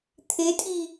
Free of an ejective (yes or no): no